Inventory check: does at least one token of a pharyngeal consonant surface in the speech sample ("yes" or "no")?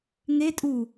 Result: no